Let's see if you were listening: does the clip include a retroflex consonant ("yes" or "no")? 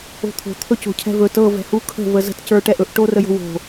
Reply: yes